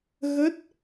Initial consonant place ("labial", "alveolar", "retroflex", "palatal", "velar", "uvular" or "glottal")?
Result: velar